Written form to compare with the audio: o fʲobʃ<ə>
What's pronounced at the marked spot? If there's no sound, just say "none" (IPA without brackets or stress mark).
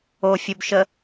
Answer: ə